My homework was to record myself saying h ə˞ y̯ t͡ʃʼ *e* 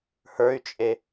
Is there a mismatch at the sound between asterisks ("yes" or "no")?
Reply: no